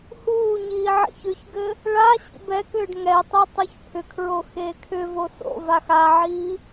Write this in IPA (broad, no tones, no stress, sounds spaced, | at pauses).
h uː ɲ iː ʕ ḭ ç ʏ ç ɡ ɘ | ɭ a ɕ ḭ b ɛ k ʏː ɖ ŋ ɛ tˤ e tˤ o ç pʰ ʏ kʰ ɹ o x eː kʰ ʏ v o s o̰ v a x a ʕ iː